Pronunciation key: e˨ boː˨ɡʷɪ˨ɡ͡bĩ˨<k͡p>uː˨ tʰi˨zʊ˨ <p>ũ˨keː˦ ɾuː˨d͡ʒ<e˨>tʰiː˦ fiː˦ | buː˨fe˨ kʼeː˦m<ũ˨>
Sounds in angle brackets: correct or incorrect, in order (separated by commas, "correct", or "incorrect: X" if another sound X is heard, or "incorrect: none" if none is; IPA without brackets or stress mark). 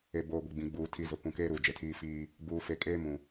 incorrect: ɡ͡b, correct, correct, correct